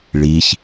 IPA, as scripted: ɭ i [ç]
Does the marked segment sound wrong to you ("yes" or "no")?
no